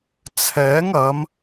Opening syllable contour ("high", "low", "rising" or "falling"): rising